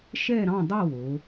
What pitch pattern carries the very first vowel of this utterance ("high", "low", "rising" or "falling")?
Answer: falling